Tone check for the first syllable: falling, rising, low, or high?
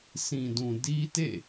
low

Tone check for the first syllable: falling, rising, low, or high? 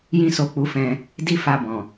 high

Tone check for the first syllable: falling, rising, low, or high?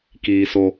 high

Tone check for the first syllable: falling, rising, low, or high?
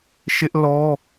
high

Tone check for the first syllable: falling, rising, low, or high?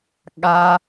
low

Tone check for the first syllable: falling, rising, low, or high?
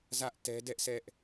high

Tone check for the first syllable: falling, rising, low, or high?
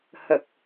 low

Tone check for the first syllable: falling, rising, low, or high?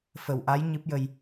low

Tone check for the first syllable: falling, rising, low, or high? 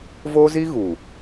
high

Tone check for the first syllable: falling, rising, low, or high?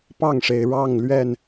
falling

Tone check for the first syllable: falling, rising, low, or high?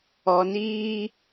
low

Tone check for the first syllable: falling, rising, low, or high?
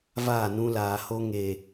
falling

